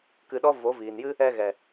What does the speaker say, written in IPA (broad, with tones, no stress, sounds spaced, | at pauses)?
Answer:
k ɨ˨ ɗ ɔ˦ v o˨˦ v iː˨ n j ɨ˦ | ɛ˧ ɣ ɛ˨